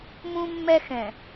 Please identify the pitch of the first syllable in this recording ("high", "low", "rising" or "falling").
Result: high